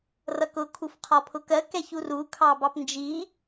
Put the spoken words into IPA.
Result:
rʌkʊ kʰufqʰɒpʰʊkɜ kɛçuru kʰɑbɑpnd͡ʒi

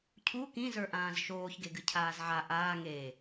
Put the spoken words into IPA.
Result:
cʰu kĩzə˞ʔãːz ʃoːçɡeɡɨ cʰaːzʕa ʔaː ŋe

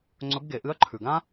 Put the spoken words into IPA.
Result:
ŋ͡ǀɵ˧˥bɡe˩˧ ʔɨ˧˥ɐ̯ǃʰʉ˩ɡã˥

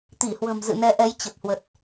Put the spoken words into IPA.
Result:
t̪i˧˩hwə̤˨˩mzɨ̰˧˨ nɛ˨˦ʔɛ˨˦j t͡ɕə˨˩p̚hwə˨˩t̚

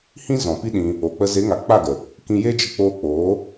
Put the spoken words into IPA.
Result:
hĩ˦ zɔ̃˨pi˦ɗĩ˧ | o˨k͡pə˧ ze˨˦ŋa˨k͡pa˦˨ɡə˨ | kĩ˧jeː˦d͡ʒə˧ k͡poː˧k͡poː˨˦

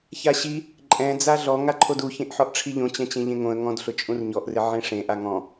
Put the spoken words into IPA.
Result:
çaɕi | ǃʼɛ̃ d͡zaɮɔ ŋaǃʰodu çẽʔħɔʔʈ͡ʂʰiʎõ t͡ɕɛ̃t͡ɕẽʎẽŋõə̯ ŋɔ̃dɬʊ t͡ʃʼũrɲɔʔrɪ ʕẽʂẽ ʔaŋɔ̃

